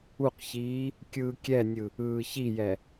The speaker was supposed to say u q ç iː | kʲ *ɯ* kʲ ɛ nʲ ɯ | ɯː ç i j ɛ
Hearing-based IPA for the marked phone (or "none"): ɯː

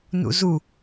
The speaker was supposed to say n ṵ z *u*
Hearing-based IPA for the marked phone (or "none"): u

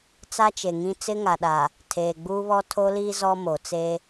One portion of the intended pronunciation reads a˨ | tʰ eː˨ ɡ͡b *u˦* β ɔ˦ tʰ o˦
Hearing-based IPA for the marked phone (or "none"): uː˦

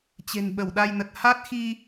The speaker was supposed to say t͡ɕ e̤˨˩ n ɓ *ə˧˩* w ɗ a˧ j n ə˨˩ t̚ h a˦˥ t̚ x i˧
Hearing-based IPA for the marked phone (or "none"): ə˧˩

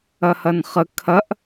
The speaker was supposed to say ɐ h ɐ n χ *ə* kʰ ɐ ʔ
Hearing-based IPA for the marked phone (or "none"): ə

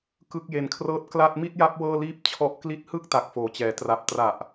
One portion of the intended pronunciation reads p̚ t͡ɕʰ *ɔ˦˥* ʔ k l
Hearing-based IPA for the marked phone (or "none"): ɔ˦˥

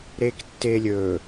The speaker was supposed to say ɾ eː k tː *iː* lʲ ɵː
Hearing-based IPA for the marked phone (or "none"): eː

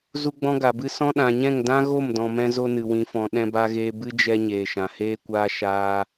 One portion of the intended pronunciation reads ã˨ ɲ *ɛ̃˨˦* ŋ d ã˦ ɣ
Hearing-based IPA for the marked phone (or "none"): ɛ̃˦˨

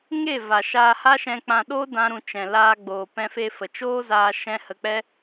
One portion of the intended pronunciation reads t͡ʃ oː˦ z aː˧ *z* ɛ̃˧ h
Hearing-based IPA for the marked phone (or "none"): ʃ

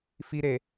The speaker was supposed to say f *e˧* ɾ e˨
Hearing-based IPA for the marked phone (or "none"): i˧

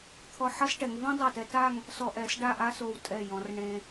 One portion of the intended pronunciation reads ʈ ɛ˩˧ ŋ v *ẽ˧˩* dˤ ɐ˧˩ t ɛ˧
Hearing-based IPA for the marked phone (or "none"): ẽ˥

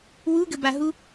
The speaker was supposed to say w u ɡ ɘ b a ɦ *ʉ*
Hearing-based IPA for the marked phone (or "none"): u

